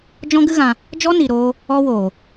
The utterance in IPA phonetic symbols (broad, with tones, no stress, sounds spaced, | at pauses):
d͡ʒ ɔ̃˦ ɡ ɨ˦ ɣ ã˧ | d͡ʒ ɔ˦ n i˨ ɾ oː˧ | ɔ˦ w oː˨